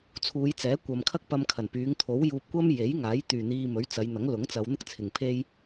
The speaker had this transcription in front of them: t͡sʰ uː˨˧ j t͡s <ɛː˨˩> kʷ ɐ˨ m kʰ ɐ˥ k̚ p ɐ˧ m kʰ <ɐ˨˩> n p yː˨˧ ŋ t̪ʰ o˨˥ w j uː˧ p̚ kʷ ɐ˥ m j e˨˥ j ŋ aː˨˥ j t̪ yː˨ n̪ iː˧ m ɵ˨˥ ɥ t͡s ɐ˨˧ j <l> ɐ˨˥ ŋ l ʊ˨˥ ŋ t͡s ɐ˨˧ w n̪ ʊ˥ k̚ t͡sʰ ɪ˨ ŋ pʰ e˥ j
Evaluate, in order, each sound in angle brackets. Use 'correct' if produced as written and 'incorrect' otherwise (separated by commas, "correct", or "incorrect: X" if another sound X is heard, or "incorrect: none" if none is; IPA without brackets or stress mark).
incorrect: ɛː˨˥, correct, incorrect: n̪